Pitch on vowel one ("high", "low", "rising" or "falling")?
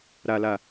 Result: low